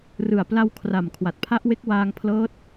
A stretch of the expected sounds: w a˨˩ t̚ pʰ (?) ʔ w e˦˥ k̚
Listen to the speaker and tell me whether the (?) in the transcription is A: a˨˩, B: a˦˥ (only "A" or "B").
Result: B